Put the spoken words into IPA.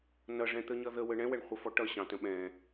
n ʌ ʐ ɛ̃ t̪ ə ɲ ʌ ð ə w ə ɳ ɛ̃ w ɛ ɳ χʷ ʌ f ɔ ʈ ʌ ɕ ɑ̃ t ə̃ ɓ ɛ̃

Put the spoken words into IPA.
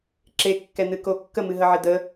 ǁ e kː ɛ n̪ ɨ k o kː ə m ɨ ɦ ə ʕ ɪ d̪ ə

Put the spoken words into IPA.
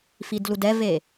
f i d l u d ɛ v e

